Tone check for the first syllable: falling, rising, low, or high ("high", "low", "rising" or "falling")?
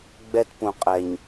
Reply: high